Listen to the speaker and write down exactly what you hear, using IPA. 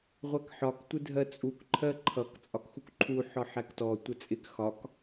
ʁʷ æ k ħ ɒ k tʷ ɪ dʱ ɜ t͡sʼ u k ǃʰ ɜ ǃʰ ʌ k t͡sʼ ɒ k x u k ǃʰ u ħ ɒ ħ æ k t ɔ tʷ ə t͡sʼ ɪ k x ɒ k

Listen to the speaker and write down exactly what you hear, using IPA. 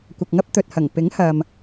kʷ ɐ˨ k̚ ŋ ɐ˥ p̚ t̪ ɵ˨ t̚ h ɐ˨˩ ŋ p ɪ˨˥ ŋ h ɐ˨ m

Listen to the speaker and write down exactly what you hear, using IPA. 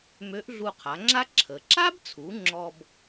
m ø˧˥ ʔ ɮ u˧ qʰ a˩˧ ŋ͡ǁ a˥ ǁʰ ə˩ ǁ a˥ b t͡sʰ u˩˧ ŋ͡ǁ ɔ˧ b

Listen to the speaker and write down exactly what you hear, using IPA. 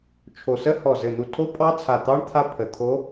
t͡ʃʰ o˧˩ s ə˦˥ h ɔ˧˩ z ɘ˧˩ n̪ u˧˩ tʰ o˦˥ pʼ ɑ˦˥ t͡sʰ a˧˩ t̪ ɑ˦˥ ɳ t̪ʰ a˦˥ pʰ ə˧˩ t̪ʰ o˦˥

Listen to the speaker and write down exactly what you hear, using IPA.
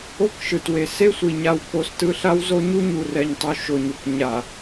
o˦ k ʃ ɯ˨ t w e˨ s e˦ sʷ i˨ ɲ a˨ w k o˨ s t ɯ˦ ɬ a˦ w z o˦ ɲ u˦ ɲ u˨ r ɛ˨ ɲ tˤ u˨ ʃ o˨ ɲ u˨ k ɲ a˨

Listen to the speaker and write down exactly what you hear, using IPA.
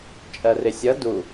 t͡ʃʼ ɜ r ɪ sʲ ʌ d u

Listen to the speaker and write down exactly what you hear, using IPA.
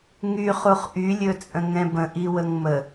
ŋ y χ u χ ʔ y lʲ ɵ t͡sʼ ə̃ ŋ ɛ̃ b ə̃ ʔ i w ə ŋ m ə

